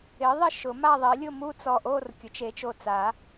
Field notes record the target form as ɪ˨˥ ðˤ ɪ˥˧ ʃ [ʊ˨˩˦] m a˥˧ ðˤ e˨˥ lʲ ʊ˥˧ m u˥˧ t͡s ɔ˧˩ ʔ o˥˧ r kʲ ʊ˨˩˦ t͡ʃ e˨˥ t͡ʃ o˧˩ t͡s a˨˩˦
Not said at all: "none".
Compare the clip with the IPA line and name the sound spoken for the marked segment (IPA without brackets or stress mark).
ʊ˨˩˦